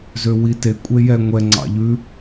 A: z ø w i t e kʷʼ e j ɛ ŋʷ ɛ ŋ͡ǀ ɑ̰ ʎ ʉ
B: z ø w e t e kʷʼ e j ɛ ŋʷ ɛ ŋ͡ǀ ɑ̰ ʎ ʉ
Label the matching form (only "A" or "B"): A